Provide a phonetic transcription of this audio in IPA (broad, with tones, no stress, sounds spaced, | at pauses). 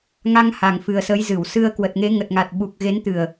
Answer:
ŋ a˧ ŋ h a˨˩ ŋ f ɨ˨˩ ə̯ s ə˨˦ j z ɨ˧˩ w s ɨ˧ ə̯ k w ə˨˩ t̚ ŋ e˨˦ ŋ ə˨˩ t̚ ŋ a˨˩ t̚ ɓ u˨˩ k̚ ɣ e˨˦ n t̪ ɨ˨˩ ə̯